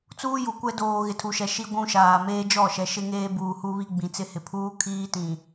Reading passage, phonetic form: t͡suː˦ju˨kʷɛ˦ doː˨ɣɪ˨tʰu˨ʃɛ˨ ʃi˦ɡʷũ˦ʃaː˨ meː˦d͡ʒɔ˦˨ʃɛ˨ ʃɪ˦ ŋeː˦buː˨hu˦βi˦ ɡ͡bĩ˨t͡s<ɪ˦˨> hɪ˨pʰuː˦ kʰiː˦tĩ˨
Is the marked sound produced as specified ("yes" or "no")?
yes